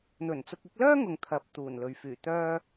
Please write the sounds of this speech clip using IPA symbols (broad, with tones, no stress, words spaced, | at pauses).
n̪ɵ˨˩nt͡sʊ˧k̚ ɪ˨˥k̚lœː˥ŋʊ˨ŋ t̪ʰɐ˨p̚ t̪uː˨˩nlɵ˨ɥfyː˨˩ t̪œː˧